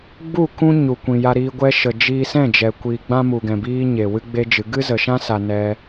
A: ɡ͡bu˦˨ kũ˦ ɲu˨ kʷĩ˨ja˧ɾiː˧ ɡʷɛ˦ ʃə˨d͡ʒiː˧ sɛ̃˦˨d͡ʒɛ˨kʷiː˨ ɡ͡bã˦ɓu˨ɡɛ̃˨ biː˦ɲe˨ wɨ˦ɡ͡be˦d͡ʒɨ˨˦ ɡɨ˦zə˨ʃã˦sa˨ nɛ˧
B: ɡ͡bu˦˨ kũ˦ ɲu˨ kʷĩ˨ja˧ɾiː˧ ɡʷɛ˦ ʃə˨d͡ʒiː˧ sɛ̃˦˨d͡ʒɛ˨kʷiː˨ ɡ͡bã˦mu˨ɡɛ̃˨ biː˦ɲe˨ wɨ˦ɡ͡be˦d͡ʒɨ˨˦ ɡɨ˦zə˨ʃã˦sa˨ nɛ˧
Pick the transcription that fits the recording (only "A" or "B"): B